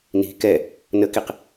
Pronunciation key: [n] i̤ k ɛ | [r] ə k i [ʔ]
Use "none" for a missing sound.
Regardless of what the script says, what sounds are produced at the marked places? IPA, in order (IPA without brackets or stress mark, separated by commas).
n, n, q